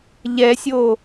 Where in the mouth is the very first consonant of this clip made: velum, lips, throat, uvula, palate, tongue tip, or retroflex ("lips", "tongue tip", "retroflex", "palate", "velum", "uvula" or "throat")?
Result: palate